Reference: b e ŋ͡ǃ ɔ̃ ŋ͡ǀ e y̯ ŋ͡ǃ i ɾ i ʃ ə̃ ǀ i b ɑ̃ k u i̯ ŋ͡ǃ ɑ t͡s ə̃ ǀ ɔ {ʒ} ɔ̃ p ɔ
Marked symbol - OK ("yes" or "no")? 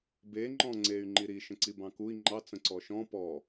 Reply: no